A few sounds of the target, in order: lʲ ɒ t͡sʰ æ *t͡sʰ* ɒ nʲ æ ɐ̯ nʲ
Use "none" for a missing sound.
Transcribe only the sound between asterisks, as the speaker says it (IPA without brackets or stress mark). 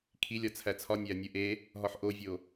t͡sʰ